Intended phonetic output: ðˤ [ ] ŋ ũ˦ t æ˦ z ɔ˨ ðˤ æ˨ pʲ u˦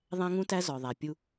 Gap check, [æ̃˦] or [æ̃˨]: æ̃˦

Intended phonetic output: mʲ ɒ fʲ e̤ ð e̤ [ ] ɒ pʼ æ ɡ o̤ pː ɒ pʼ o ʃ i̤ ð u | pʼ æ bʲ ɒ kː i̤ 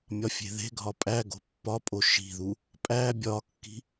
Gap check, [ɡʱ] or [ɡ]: ɡʱ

